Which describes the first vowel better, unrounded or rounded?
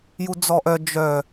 rounded